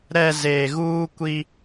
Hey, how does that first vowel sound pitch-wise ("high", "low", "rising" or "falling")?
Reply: low